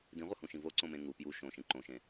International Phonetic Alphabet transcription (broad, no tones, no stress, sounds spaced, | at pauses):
d ĩ ʁʷ ʌ h ũ ʃ ĩ v o ǀ õ m ẽ ŋ u p j u ʃ õ ʃ ĩ ǃ õ ʃ ẽ